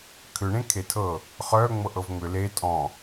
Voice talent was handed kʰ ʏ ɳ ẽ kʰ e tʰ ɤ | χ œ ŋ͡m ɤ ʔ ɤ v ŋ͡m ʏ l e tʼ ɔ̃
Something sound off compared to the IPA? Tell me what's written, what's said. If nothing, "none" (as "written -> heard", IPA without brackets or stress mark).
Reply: none